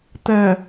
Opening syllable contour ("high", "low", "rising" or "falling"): low